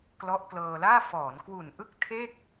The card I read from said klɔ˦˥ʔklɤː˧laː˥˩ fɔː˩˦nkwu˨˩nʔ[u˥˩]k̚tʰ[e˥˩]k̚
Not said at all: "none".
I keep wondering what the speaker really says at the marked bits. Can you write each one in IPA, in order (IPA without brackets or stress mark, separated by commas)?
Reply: ɯ˥˩, e˥˩